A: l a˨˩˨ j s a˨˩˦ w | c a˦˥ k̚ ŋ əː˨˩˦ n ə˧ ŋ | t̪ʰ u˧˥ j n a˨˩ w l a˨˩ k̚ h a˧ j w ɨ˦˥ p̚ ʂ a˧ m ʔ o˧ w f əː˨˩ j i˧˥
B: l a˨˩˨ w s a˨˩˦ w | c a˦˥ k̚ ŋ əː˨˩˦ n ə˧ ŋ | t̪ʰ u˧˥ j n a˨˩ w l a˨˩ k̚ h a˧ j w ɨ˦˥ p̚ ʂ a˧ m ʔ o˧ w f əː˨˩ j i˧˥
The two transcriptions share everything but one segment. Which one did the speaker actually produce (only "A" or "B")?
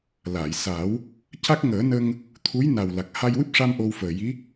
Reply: A